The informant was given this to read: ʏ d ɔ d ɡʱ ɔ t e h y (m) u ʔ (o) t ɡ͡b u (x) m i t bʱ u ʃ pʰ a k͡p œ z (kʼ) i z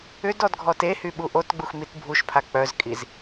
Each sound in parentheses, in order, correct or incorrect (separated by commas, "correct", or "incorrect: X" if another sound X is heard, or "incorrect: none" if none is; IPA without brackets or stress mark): incorrect: ɓ, correct, correct, correct